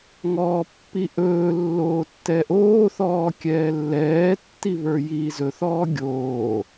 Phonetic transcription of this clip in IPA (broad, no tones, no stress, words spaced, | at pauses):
ŋɔːpːiʔɵː lːoːtːɛʔoːθɔː kʲɛːlːɛːtːiβə˞ jiːzɵθɔː ɡʲoː